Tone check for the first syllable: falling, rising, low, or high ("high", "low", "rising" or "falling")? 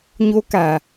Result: high